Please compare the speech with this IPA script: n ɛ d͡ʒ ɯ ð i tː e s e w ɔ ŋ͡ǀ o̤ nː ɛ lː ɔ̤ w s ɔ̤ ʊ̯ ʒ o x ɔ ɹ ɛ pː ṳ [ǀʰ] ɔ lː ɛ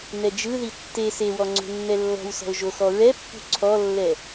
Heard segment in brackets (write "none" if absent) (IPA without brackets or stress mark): ǀʰ